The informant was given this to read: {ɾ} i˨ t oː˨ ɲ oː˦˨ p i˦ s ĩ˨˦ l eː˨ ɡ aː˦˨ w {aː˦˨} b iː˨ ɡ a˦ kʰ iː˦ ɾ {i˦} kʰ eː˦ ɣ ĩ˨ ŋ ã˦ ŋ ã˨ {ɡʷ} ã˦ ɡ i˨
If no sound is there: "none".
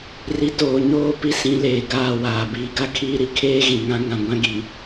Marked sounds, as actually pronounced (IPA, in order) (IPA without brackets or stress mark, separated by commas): r, aː˨, i˦, ɡʷ